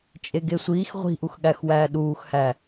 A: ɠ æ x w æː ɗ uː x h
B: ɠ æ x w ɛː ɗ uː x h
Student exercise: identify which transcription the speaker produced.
A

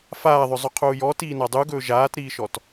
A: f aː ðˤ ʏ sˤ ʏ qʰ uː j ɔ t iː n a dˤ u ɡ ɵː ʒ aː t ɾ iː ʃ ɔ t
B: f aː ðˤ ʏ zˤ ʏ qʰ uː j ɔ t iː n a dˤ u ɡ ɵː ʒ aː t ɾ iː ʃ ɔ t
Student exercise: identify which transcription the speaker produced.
B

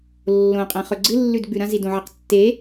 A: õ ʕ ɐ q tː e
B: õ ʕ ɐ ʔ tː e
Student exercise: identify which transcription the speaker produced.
A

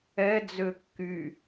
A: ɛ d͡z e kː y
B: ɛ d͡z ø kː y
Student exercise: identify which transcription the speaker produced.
B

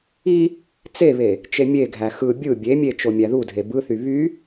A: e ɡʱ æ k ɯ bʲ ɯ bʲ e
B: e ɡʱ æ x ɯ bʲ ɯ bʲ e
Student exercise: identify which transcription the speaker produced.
B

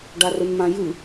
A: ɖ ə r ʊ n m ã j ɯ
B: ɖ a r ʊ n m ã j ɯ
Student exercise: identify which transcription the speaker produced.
B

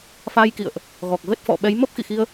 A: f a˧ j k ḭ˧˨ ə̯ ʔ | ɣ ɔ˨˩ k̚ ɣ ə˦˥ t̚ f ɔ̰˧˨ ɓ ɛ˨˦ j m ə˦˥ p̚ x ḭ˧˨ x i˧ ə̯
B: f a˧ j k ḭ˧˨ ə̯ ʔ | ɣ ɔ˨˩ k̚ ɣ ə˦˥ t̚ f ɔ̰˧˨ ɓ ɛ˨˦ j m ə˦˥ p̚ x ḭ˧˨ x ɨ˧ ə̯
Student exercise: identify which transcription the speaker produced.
A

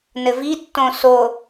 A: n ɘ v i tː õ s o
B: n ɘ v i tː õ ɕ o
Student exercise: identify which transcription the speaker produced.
A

